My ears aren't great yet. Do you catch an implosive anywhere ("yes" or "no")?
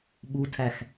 yes